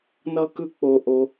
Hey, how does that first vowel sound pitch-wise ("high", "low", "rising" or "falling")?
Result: high